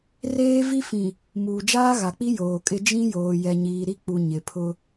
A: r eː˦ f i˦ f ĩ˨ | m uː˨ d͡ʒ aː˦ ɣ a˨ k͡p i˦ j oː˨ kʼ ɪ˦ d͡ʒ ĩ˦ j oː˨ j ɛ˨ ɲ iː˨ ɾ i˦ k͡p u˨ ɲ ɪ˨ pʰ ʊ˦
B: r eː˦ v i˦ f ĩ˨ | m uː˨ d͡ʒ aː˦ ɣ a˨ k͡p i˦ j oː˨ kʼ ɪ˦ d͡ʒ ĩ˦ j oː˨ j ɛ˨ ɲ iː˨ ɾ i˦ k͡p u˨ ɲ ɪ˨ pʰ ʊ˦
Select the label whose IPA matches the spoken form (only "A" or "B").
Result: B